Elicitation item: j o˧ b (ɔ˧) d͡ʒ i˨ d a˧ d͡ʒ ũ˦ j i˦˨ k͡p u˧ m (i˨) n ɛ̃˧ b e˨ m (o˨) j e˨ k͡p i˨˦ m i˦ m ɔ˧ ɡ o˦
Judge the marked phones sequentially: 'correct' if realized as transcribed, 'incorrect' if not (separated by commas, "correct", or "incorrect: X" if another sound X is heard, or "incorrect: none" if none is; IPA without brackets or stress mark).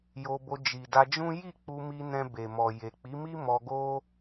incorrect: o˧, incorrect: i˧, incorrect: ɔ˨